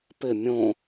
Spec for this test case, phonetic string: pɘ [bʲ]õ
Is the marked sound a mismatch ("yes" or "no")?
yes